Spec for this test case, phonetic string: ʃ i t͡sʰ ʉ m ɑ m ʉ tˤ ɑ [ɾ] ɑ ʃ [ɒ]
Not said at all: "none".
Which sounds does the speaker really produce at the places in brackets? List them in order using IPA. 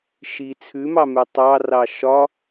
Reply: r, ɒ

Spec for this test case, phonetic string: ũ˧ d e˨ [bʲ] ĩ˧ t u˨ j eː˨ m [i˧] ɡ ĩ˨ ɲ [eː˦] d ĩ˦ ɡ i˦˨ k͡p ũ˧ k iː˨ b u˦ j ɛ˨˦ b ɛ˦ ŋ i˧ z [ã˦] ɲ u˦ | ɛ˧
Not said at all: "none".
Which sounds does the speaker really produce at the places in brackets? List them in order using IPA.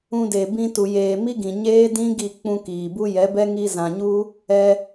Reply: b, i˦, eː˦, ã˨

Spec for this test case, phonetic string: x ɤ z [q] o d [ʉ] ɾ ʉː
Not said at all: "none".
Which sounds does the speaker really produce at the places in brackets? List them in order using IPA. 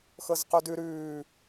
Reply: q, ʉ

